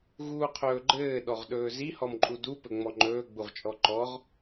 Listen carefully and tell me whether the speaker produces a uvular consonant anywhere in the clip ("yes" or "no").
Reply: yes